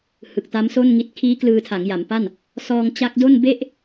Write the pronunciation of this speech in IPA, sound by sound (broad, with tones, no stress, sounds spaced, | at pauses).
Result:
h ɯ˨˩ k̚ t a˦˥ m s o˥˩ n ŋ i˦˥ t̚ kʰ iː˦˥ k l ɯː˧ tʰ a˩˦ ŋ j a˩˦ m p a˥˩ n | s ɔː˧ ŋ t͡ɕ a˦˥ k̚ d o˥˩ n b e˥˩ ʔ